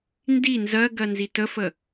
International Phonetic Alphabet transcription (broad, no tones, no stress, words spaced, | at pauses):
ndi nzɜɡɜ nzitəfə